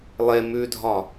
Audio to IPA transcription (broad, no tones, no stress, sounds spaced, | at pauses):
lˠ e m ʉ dʱ ɒ